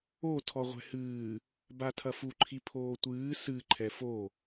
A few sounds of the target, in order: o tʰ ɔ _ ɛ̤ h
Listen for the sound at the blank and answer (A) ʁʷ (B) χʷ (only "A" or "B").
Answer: A